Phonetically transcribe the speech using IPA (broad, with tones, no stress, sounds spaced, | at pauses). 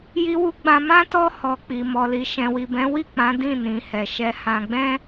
j i˧ w u˧ ɡ͡b ã˧ m ã˦ t ɔ˧ h ɔ˨ k͡p i˨ m ɔ˨ l i˨ ʃ ɛ̃˨ w i˨ b ɛ̃˨˦ w i˦˨ k͡p ã˨˦ d ĩ˦˨ n ĩ˨˦ h ɛ˧ ʃ ɛ˧ h ã˧ ɡ͡b ɛ̃˦